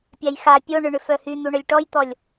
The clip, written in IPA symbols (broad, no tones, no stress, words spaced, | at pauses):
pʲajxa pʲoɳʏɳʏ fœhyn̪u ɳœlʲʈɔjt̪ɔlʲ